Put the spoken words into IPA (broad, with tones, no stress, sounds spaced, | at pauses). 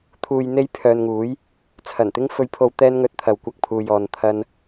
t̪ʰ uː˨ j n̪ e˧ j pʰ œː˨ n ŋ uː˨˥ j | t͡sʰ ɐ˨˩ n t̪ ɪ˥ ŋ f ɵ˧ ɥ pʰ o˧ w t̪ ɛː˥ n ŋ ɵ˧ t̚ t̪ʰ ɐ˨ w kʷ ɐ˧ k̚ pʰ uː˨ j ɔː˨ n t̪ʰ ɐ˥ n